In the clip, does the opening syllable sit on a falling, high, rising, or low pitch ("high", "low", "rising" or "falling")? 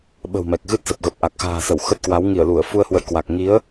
low